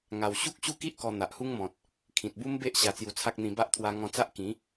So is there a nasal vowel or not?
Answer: yes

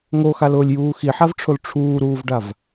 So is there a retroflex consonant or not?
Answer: yes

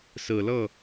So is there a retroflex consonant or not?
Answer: no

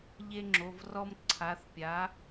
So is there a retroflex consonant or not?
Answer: no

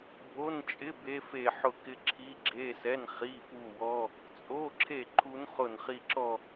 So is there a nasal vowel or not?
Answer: no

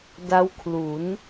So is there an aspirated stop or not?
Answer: yes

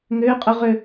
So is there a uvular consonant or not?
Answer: yes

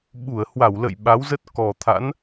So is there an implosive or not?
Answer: yes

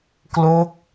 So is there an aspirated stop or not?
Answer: no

